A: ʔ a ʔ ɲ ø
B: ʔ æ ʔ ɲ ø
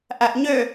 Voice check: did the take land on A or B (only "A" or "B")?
B